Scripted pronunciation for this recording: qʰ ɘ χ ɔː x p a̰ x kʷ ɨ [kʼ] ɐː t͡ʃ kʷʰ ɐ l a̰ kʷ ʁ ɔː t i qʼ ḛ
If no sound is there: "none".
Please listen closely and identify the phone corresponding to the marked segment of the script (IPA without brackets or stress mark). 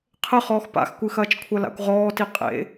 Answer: x